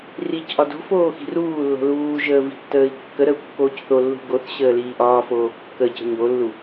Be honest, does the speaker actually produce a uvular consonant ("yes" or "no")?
no